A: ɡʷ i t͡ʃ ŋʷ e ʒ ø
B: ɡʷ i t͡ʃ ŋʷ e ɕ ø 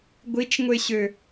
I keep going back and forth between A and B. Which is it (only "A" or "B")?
B